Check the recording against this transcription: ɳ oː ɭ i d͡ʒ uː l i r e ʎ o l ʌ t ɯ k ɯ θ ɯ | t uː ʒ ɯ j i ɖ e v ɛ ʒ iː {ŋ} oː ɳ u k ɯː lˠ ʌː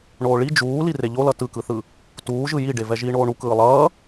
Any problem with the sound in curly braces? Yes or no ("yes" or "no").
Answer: yes